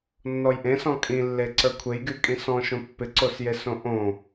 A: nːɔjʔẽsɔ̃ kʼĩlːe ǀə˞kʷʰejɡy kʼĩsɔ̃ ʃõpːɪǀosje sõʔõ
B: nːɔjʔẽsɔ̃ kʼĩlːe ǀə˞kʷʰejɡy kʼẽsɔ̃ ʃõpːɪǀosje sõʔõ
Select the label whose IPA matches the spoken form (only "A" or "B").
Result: A